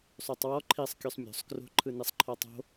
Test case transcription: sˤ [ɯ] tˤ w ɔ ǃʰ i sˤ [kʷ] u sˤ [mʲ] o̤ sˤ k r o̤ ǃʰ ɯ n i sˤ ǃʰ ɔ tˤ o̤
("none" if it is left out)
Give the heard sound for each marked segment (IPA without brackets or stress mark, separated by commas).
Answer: u, kʲ, mʲ